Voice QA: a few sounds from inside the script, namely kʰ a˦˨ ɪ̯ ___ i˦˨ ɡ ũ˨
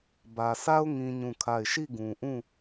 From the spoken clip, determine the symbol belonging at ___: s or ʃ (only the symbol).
ʃ